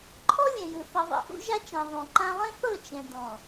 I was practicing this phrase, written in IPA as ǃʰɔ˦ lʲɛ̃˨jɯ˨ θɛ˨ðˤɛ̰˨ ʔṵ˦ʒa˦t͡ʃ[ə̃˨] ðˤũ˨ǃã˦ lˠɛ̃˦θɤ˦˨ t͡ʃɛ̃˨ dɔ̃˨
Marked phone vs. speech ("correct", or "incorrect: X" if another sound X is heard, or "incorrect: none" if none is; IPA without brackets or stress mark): incorrect: ã˨